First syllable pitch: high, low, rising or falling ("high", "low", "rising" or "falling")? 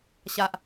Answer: low